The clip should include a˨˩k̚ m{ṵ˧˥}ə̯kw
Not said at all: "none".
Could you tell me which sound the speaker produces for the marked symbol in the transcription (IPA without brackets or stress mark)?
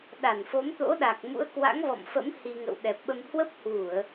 ṵ˧˥